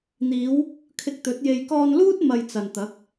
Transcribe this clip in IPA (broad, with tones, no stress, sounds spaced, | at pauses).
n̪ iː˨˧ w | kʰ ɪ˧ k̚ t̪ ɵ˨˥ t̚ j e˧ j k ɔː˧ n l uː˥ t̚ m ɐ˧ j t͡s ɐ˨ n t̪ ɐ˨˥ k̚